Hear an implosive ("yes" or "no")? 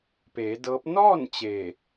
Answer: no